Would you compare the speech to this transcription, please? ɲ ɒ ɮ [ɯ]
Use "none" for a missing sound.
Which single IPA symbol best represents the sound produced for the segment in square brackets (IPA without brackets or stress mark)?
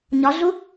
u